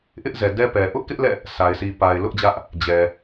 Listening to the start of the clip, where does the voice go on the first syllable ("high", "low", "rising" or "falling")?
high